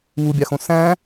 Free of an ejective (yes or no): yes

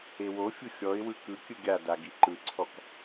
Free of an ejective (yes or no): yes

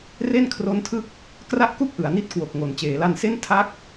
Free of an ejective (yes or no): yes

